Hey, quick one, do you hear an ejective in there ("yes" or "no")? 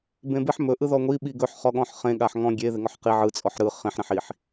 yes